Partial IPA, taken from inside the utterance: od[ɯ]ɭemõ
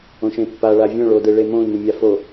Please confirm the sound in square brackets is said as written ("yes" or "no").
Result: yes